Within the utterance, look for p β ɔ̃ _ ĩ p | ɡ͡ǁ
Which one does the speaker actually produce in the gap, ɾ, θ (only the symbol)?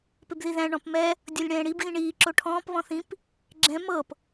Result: θ